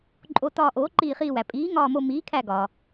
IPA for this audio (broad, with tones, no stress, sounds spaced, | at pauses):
ǃʼ o˧˩ t ɒː˧˩ ʔ oː˩˥ ǃ iː˧˩ χ iː˧˩ w æ˩ pʼ iː˩˥ ŋ ɒː˧˩ m o˧˩ m iː˩˥ kʰ æ˧˩ ɡ ɒː˩